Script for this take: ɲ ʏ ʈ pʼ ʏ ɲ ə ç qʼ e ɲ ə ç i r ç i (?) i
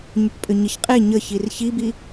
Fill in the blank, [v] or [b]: b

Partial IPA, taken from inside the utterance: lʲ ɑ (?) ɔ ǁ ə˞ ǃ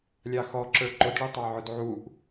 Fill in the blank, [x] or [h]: x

